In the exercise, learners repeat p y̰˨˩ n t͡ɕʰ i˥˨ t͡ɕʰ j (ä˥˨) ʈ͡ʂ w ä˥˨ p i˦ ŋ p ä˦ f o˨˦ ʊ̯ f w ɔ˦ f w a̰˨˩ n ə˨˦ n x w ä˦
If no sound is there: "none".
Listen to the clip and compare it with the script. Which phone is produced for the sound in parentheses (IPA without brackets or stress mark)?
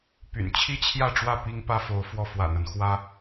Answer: ä˥˨